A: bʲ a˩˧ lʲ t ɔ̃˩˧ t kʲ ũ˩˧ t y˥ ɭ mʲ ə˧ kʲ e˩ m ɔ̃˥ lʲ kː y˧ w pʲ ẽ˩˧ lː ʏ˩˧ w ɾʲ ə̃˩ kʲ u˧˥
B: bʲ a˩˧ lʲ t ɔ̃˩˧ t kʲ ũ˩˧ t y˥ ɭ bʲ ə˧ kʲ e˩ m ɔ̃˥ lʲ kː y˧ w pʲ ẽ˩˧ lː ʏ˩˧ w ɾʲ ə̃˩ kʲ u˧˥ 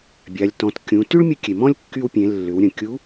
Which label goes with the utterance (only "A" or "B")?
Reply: A